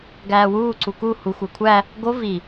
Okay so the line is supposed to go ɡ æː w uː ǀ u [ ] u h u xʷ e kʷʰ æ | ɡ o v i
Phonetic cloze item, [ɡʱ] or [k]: k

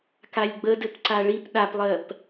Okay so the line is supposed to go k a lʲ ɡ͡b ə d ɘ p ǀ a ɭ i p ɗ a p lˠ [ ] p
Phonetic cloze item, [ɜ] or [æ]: ɜ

